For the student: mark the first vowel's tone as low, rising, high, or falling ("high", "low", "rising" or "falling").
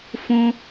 high